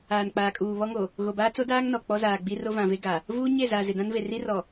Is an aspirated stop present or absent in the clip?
absent